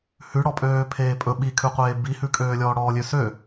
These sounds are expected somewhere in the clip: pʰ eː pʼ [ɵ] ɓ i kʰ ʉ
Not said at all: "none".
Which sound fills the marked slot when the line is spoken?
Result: ɵ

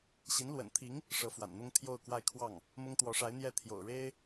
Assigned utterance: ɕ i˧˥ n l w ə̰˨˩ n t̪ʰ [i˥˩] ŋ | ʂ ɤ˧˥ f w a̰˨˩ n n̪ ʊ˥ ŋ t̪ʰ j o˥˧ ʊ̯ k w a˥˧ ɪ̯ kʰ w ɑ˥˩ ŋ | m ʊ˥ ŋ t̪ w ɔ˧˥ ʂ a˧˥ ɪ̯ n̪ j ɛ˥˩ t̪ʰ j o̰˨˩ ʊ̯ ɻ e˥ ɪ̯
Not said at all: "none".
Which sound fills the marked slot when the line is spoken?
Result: i˧˥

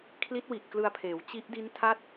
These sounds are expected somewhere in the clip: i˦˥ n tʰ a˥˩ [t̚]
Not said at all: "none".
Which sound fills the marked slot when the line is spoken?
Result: t̚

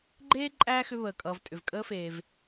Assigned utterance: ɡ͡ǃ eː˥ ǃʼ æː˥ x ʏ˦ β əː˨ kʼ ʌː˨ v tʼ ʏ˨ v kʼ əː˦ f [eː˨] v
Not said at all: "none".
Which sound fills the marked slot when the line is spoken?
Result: eː˨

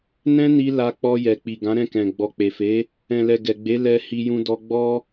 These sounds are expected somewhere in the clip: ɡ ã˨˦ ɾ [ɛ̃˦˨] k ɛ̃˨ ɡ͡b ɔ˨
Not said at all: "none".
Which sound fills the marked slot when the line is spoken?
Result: ɛ̃˦˨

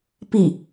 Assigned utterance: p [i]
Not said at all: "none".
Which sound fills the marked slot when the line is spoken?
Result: i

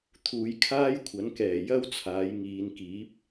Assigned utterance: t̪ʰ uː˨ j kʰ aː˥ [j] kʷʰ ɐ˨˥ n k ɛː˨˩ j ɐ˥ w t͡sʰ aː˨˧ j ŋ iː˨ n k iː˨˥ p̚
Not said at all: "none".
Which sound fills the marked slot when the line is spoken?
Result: j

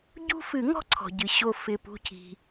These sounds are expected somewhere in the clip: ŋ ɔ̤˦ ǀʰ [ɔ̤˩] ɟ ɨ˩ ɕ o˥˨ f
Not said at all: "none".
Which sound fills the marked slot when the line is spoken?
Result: ɔ̤˩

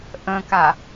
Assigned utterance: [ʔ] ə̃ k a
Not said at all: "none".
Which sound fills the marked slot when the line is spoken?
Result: ʔ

